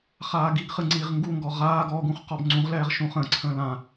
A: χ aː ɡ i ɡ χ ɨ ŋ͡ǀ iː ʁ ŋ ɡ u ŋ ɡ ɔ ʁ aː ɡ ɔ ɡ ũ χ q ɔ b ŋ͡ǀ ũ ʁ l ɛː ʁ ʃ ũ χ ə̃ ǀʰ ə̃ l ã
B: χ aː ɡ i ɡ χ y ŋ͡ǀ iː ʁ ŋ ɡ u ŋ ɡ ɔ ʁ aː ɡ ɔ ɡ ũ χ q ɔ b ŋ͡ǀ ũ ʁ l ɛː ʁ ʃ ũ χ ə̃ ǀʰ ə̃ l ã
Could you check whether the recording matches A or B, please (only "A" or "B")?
A